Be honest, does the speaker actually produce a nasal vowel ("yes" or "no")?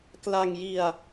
no